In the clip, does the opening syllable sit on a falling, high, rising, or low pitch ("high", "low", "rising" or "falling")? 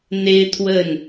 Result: high